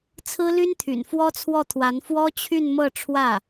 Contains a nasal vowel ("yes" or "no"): no